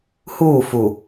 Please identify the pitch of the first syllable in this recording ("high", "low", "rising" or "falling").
falling